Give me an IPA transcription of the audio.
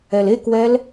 ɛlekwɛl

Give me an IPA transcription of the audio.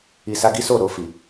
i˨sa˧ɡi˦so˦˨ ɾo˧ fi˨

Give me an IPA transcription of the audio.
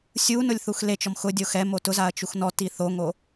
sʲunʊlʲ θuxlet͡ʃɔm xʊdʲo xɛ motʊzaɐ̯ t͡ʃuxnɔti θoŋo

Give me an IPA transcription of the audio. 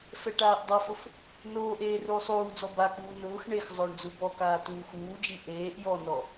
fɛʈaːʔdˤafʊf | noːʔeː ruːsˤuːd͡zɔ bakuː nʊːx ɳexzˤʊːɳ d͡zubɔkaː tuːxuːd͡ʒi ʔeːʔ jɔnɔ

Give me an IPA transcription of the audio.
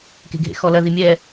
ke̤ɡʱḛxɔlɐ ðimʲɛ

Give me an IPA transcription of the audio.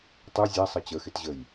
tˤu zʲæsˤʌ t͡ɕəxɪtʑəj

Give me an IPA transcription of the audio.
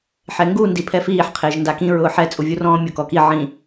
ħɛŋɡu ndipʰɛfiːħ qʰɪːʒndakĩ ɹʊːħɛ t͡sʼuvʲurɔ̃ːmʲok ɔki ʕĩ

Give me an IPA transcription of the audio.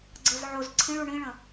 ɡ͡ǀɤzʕoz ǀʰĩɭ uɳĩɭə̃

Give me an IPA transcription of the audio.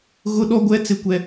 ɣʊ˦ɗɔ˦ɡʷɛ˦t͡sɪ˦ kʷɛ˦

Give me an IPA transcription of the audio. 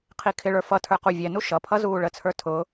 qʰikʰɪɭə˞ fʌtʰə˞ quvʲɛnu ʃʌpʰʌ zuːɭət͡sʰə˞ tʰʊː

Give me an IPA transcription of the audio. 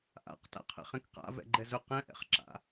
ʔa̰qta̰qʰɛ̰χẽk qa̰vɛ̰ɡ͡ǃɛz ʊq ɛ̃ʔɛ̰χǁa̰

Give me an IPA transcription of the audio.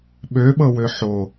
ɓøɓɤwø ħo

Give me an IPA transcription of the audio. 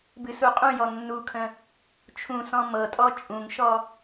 bɨsuqʼũjɔ nːukʰə̃ | t͡ʃʰũsɔ̃ mɤtʼɔ t͡ʃʼũŋʃɔ

